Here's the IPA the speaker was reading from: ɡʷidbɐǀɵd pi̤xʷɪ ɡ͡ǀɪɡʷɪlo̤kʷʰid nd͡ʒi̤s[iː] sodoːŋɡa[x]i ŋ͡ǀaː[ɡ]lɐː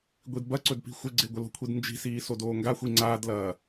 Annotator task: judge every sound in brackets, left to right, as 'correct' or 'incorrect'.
correct, incorrect, incorrect

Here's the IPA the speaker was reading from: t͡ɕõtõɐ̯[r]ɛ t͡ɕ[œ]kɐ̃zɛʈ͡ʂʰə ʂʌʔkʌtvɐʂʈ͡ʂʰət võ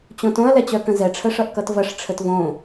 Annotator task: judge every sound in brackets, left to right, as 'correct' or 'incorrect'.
incorrect, correct

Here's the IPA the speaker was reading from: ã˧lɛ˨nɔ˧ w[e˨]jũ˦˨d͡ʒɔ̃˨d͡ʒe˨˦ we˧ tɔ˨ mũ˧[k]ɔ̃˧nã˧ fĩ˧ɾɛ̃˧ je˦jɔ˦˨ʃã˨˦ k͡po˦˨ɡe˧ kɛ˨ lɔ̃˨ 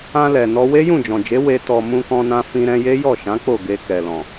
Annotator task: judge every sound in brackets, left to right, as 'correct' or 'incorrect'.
incorrect, correct

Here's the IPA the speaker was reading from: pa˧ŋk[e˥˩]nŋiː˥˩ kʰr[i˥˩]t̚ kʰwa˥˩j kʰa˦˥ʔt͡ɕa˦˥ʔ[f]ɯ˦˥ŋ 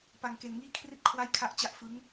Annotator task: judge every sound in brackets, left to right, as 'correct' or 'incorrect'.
incorrect, correct, correct

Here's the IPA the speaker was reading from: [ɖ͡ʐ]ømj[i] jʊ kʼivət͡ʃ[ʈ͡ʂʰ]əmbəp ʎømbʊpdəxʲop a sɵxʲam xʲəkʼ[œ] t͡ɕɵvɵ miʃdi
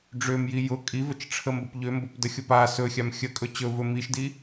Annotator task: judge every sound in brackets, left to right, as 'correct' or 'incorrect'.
correct, correct, correct, incorrect

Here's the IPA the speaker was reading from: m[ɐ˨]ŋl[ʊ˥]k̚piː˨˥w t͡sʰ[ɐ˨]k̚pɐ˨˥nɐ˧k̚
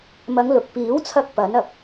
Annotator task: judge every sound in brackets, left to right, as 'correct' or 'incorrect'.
incorrect, incorrect, incorrect

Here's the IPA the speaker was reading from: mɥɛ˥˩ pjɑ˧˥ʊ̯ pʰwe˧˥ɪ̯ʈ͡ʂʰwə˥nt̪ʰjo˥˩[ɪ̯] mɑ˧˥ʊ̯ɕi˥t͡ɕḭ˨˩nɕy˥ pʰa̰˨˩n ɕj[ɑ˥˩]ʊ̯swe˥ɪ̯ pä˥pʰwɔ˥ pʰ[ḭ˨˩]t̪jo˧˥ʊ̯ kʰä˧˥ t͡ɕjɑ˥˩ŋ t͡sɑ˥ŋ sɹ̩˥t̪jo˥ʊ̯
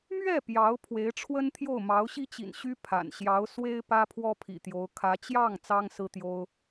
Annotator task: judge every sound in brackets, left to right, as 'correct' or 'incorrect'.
incorrect, incorrect, correct

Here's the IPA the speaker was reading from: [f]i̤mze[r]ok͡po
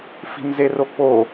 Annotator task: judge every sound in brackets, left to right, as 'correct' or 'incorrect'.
correct, correct

